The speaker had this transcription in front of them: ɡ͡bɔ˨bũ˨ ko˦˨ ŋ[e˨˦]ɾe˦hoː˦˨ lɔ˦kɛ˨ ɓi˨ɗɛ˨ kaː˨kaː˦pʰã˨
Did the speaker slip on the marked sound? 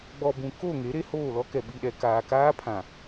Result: no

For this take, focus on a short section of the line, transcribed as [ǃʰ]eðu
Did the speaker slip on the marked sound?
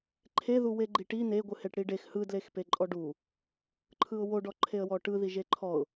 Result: no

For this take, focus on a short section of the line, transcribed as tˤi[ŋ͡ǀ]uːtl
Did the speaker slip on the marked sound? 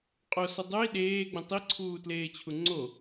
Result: yes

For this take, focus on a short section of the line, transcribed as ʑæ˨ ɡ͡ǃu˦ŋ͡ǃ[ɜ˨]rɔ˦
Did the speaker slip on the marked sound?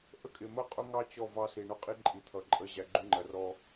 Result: no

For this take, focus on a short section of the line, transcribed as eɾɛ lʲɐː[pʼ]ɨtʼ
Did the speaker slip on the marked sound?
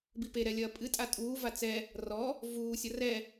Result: no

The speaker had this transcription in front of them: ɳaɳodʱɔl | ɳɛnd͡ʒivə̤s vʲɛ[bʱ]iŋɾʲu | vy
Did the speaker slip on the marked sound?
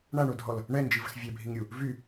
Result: no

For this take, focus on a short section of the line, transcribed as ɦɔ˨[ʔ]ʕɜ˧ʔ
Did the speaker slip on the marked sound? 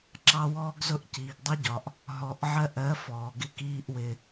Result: no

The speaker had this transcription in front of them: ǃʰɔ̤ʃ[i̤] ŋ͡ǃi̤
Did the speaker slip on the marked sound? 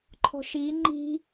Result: yes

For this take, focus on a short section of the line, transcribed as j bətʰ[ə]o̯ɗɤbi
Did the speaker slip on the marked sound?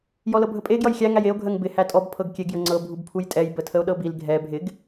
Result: no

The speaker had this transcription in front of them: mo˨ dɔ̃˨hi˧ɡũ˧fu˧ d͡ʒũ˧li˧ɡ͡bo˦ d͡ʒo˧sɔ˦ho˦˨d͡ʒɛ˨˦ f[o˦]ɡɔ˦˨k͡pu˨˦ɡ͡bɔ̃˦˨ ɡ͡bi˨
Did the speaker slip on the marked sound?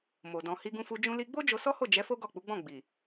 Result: no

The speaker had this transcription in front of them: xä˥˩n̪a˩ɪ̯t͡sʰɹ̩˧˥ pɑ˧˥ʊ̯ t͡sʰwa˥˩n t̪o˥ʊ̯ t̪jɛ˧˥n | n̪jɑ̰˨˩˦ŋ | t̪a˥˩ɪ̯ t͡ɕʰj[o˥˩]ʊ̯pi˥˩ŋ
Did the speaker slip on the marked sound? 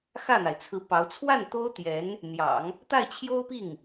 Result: yes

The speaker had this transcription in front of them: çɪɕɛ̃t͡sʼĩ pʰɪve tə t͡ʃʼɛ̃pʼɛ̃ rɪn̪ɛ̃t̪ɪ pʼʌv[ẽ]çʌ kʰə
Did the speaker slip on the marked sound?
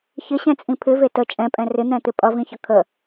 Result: yes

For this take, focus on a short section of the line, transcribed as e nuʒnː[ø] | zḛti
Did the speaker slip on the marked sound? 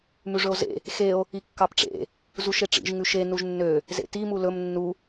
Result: no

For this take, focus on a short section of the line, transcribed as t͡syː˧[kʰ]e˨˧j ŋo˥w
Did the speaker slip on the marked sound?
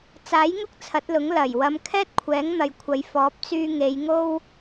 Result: yes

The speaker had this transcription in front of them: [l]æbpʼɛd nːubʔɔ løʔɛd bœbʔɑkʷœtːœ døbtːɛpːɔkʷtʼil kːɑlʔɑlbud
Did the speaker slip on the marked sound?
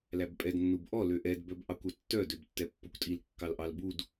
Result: no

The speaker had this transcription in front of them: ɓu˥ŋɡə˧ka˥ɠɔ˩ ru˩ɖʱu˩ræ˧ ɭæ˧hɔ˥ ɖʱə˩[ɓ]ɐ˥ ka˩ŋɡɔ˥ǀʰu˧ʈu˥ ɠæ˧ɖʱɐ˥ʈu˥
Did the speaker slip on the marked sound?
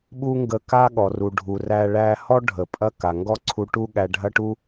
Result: yes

